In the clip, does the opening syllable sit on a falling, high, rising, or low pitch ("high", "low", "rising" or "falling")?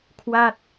falling